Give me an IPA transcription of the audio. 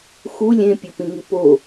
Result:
x u lʲ ẽ pʲ o p ĩ ŋ i p o

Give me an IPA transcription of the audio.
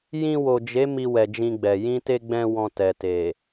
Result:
j ĩ˧ w o˨ d͡ʒ e˨˦ m i˧ w ɛ˨ d͡ʒ ĩ˧ ɡ͡b ɛ˨ j ĩ˧ t e˧ ɡ͡b ɛ̃˧ w ɔ̃˧ t ɛ˨ t e˨

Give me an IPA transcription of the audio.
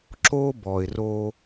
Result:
ǁ o˦ b ɔ˨ ɪ̯ r o˦

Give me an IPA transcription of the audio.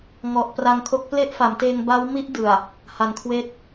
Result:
ŋ ɔ˨˩ ʔ p r a˧ ŋ kʰ o˦˥ k̚ p l e˥˩ ʔ f a˩˦ m t eː˧ ŋ b a˦˥ w m i˦˥ ʔ d ɯ˨˩ a̯ | h a˨˩ n kʰ w eː˥˩ t̚

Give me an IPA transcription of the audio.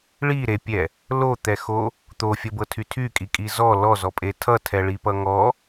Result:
ɭ i ɾ e pʲ ɛ | l o t̪ ɛ x o | t̪ o fʲ ʌ b ɤ tʰ y tʰ y kʼ i kʼ i z ɔ l ɔ z ɔ pʼ e tʰ ʌ tʰ ɛ ɭ i p ʌ ŋ ɔ

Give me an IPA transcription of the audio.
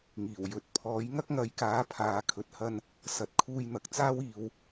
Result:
ŋ iː˨˩ w j ɵ˨˥ t̚ pʰ ɔː˨˥ j ŋ ɐ˥ k̚ ŋ ɐ˨˥ j k aː˨˥ pʰ aː˨˧ kʰ ɵ˨ t̚ h ɐ˧ n | s ɐ˨˥ t̚ kʰ uː˧ j n̪ ɐ˨ k̚ t͡s aː˥ w iː˨ w

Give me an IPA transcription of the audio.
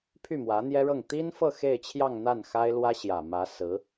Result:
pʰ y˥˩ m w ä˧˥ n̪ j ɛ˥ ɻ ɤ˥˩ ŋ t̪ i˥ n f ɤ˥˧ x e˥˧ ɪ̯ t͡ɕʰ j ɑ˥˧ ŋ n̪ a˥˩ n x a˥ ɪ̯ l w ä˥ ɕ j ä˨˩ m ä˧˥ s ɹ̩˧˥

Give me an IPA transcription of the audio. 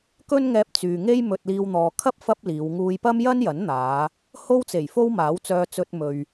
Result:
k ɵ˥ n ŋ ɛː˧ p̚ t͡s yː˨ ŋ e˥ j m ɵ˧ t̚ l iː˧ w n̪ ɔː˨ kʰ ɐ˥ p̚ f ɐ˥ p̚ l iː˨˧ w ŋ uː˧ j p ɐ˥ m j ɐ˥ n j ɐ˨˥ n n̪ aː˨˧ | h o˥ w t͡s e˨˩ j f o˥ w m aː˨˥ w t͡s œː˧ t͡s ɵ˧ t̚ m ɵ˨ ɥ

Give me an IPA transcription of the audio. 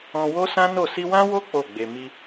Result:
ɔ̃˧ w o˦ s ã˦ n o˦˨ s i˧ w ã˦ w o˦ k͡p o˦˨ ɡ͡b e˧ m i˧

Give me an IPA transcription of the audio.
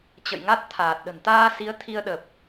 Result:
t͡ɕ ə̰˧˨ j ŋ a˦˥ t̚ t̪ʰ aː˨˩ t̚ ɗ ə̤˨˩ n t̪ aː˧ s i˨˦ ə̯ t̪ʰ i˧ ə̯ ɗ ə˨˩ p̚

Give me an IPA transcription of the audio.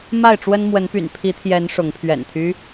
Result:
m a˥˨ ɪ̯ ʈ͡ʂ w ə˦ n m w ə˨˦ n p y̰˨˩ n pʰ i˨˦ t̪ʰ j ɛ˨˦ n ʂ ʊ˨˦ ŋ pʰ ɥ ɛ̰˨˩ n t̪ʰ y˦

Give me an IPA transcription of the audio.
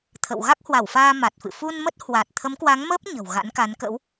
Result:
t̪ʰ ə̰˧˨ w ɣ a˦˥ k̚ h w a˧˩ w f aː˧ m a˨˩ t̚ f ɨ̰˧˨ f u˧ n m ə˦˥ t̚ h w a˨˩ t̚ t̪ʰ ə˨˦ m k w a˨˦ ŋ m əː˦˥ p̚ ɲ ə̤˨˩ w ɣ a̰˧˥ n k a˨˦ n k ə̰˧˥ w

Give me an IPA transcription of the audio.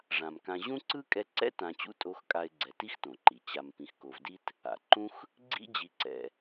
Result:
ʐ ã˩ m k ã˨ ʑ ũ˥ ǀ ɯ˥ kʼ ɛ˦ ǀ ɛ̰˥ t ã˨ t͡ɕ ṵ˦ tʼ o˨ x kʼ a˨ ɪ̯ ɡ͡ǀ ɛ˨ t i˥ x t õ˩ ǃ i˩ t͡ɕ a˨ m p ĩ˨ x k o˨ v d i˥ t | a̰˩ ǃ ũ˦ x | ɡ͡ǀ ḭ˥ d͡ʑ i˨ ǀ ɛ̰˨

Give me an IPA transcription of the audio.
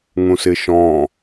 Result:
ŋ ũ s ɪ ʃ ɔ̃

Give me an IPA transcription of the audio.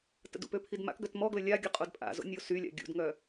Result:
t ə̰ d ṵ p ø pʰ i d m a̰ k ɡ œ t m ɔ ɡ l ə lʲ a ɡʲ ə qʼ o d pʼ a̰ z o̰ nʲ o s y lʲ a̰ ɡʲ ṵ d ŋ œ

